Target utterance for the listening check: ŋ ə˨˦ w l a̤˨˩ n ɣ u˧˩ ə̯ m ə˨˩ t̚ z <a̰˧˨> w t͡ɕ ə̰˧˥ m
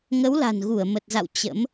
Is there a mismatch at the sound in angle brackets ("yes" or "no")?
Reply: no